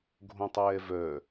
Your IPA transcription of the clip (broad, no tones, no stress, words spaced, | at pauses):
ɡʱõtˤɛːvœ